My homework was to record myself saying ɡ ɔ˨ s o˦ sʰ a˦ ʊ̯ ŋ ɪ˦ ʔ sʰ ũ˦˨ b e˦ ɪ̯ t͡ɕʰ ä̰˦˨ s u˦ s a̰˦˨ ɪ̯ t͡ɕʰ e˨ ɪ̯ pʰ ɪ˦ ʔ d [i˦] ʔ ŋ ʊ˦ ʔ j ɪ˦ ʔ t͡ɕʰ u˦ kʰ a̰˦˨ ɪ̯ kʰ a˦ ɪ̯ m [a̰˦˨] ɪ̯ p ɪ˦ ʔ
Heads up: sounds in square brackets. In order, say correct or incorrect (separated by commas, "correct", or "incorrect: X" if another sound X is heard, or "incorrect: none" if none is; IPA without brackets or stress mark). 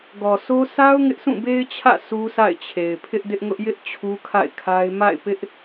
incorrect: ɪ˦, correct